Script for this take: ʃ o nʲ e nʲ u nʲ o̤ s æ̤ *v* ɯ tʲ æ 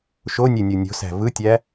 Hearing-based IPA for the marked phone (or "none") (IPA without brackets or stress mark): v